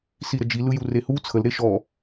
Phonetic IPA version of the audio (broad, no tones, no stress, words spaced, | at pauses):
siɾəd͡ʒi lɯjurehu t͡sʰəl ɾeʃɔ